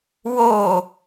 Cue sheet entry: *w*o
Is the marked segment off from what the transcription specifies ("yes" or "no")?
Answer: no